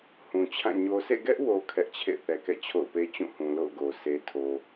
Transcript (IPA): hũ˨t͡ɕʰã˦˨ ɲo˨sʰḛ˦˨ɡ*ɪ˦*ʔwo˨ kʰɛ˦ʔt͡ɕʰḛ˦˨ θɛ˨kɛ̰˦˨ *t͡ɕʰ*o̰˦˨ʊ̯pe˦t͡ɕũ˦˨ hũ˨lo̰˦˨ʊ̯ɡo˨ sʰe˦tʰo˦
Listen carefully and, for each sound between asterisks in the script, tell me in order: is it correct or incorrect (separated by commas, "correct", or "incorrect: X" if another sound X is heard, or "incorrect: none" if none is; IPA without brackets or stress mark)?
incorrect: ɛ˦, correct